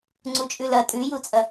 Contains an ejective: yes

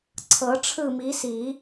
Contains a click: yes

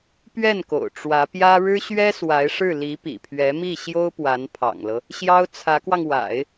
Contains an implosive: no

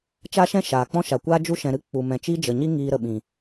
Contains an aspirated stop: no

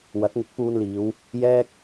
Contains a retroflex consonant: no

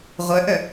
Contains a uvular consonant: yes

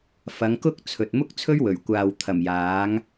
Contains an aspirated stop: yes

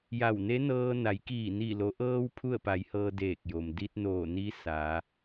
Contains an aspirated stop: yes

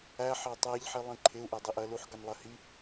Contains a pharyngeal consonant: yes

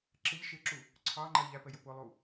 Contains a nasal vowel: no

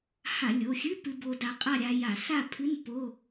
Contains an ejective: yes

